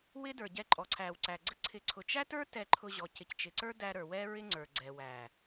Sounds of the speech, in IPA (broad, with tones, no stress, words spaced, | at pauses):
wɪ˦də˞˨ɟɛ˧ ǃʼɔ˨ǀʰæ˨w ǀæ˨ɡ͡ǀə˦ǀʰɪ˧ ǀʰʊ˨t͡ʃæ˦tə˞˦ tɛ˧ǃʰʊ˧ʑɔ˨ cɪ˨ct͡ʃɪ˨ǀə˞˦ dæ˧ ɾə˞˨ wɛ˦ ɹɪ˦ŋ͡ǀə˞˨ɡ͡ǀɛ˨ wæ˨